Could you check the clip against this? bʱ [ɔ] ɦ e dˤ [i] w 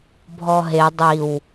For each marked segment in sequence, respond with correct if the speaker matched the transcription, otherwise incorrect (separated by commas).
correct, correct